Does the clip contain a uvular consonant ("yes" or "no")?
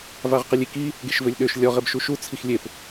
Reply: yes